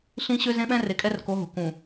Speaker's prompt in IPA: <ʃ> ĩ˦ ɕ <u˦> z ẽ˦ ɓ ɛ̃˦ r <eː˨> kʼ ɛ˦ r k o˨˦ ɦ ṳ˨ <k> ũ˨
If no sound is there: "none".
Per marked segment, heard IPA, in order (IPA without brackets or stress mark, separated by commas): ɬ, ø˦, e˨, k